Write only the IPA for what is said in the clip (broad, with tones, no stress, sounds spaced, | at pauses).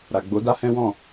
ɾ a˨ ɡ͡b o˨˦ d a˦ h ɛ̃˦ w ɔ̃˦˨